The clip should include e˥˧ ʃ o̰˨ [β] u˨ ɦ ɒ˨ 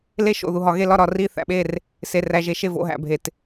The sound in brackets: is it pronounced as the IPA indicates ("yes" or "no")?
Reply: no